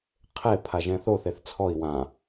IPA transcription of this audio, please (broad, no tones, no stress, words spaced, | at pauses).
qʰe pʰaʒɛ̃θo θeθt͡sʰɔi̯ wã